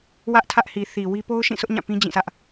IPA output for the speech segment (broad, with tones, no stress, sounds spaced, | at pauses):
w ä˦ ʔ tʰ ä˦ ʔ h i˨ θ i˨ w i˦ p o˦ ʊ̯ ʃ ĩ˦˨ s ʊ˦ ʔ ɲ ã˦˨ p ĩ˦ d͡ʑ ĩ˦˨ s ä˦ ʔ